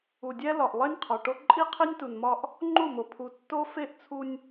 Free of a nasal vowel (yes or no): yes